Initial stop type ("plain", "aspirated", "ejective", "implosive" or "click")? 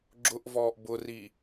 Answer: click